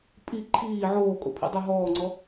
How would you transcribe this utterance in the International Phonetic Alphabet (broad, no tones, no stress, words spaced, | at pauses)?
pʼi ǃʰiː ʕoːkʼo̰pʰḭdˤø ɦɔːŋ͡ǀɔ